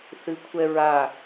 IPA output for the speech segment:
θɨkʷʰɛɹa

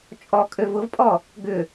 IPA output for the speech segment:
t͡ʃʼɔkʼøv ʊvpʼɔ | ɡʏ

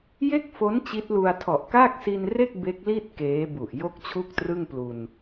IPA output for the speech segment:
je˥˩k̚fo˦˥n t͡ɕi˦˥t̚lu˧a̯ tʰɔ˨˩ʔkaː˥˩k̚si˧nre˥˩k̚ be˦˥k̚li˥˩t̚ keː˦˥bu˨˩ʔ jo˥˩k̚t͡ɕʰu˥˩k̚trɯ˥˩ŋ plu˧n

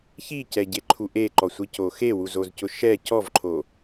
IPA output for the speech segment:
çicɛɟeǃʰu ʔeǃɔsʷico xewuzozcʊ ʃɛ cɔvǃʰo

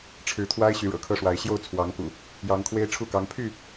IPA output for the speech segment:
ʈ͡ʂʰɻ̩˨˦t̪ʰwa˦ɪ̯ ɕy˨˦ɻɤ̰˨˩kʰɤ˦ʂwa˨˦ɪ̯ ɕjo˥˨ʊ̯t͡sʰwɑ˨˦ŋkṵ˨˩ | jɑ˨˦ŋkʰwe˦ɪ̯ʈ͡ʂʰu˥˨kɑ˨˦ŋ pʰy˥˨

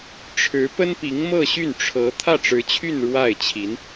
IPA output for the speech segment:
ʈ͡ʂʰɻ̩˧˥pə˥n pi˧˥ŋmɤ˥˧ɕy˥˩nʈ͡ʂʰɤ˧˥ t̪ʰä˥˩ʈ͡ʂɻ̩˧˥t͡ɕʰy˥˧n ɻwa˥˩ɪ̯t͡ɕʰi˧˥n

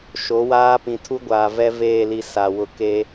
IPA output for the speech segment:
ʃo˨˦waː˦ pĩ˨tʰu˦ɡʷaː˨ vɛ˦veː˦˨li˨ sa˨ wʊ˨ keː˦

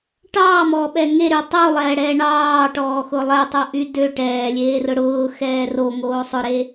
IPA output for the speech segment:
ʈɑːmɔːɓɛ ŋeɾy tˤulˠɛːɽɛː ɳɑːʈɔːxʊ lˠɛtˤoʔy dø ʈɛːlʲeːrʊ ɽʊːxɛː roŋoː sˤʊɾe

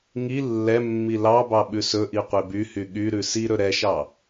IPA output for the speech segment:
ŋi lːɛmːi lɑbɑ ɓʉsɵʔi qʷebyhy ɠyɾʉ si ɾɵɾɛʃɑ

